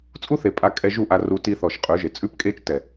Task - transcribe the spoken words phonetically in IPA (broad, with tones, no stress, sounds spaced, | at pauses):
t͡sʼ u˦ θ e˨ pʼ a˧ kʼ ɛ˧ ʒ u˦˨ ʔ a˧ r u˧ t i˧ θ ɔ˨ ʃ qʼ ʉ˨˦ ʒ e˨ t͡sʼ ʉ˦ p kʼ e˦ t͡ʃ t ɛ˨